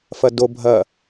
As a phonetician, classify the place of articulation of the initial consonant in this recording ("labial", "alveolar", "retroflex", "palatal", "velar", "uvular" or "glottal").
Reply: labial